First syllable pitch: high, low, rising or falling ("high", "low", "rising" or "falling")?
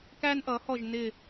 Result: high